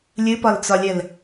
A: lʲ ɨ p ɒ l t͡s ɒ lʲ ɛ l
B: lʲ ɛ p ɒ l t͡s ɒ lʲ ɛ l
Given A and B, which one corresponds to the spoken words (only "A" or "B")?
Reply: A